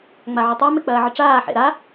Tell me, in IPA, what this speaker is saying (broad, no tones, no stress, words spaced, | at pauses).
ŋ͡maʕʏtˤa mek͡pɐːʕəʈ͡ʂaː ħḛɾa